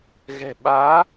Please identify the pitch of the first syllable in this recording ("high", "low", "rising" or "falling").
low